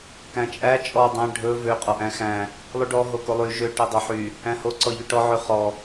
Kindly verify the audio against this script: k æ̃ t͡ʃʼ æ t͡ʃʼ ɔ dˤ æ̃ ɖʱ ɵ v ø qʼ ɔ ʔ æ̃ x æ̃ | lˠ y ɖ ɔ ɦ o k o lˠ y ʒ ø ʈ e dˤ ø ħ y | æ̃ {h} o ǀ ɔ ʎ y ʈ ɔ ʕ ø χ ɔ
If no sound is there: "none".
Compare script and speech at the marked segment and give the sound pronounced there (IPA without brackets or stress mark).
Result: h